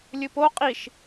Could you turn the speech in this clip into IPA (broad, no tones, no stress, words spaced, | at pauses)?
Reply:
lʲɨpo qʼiʃ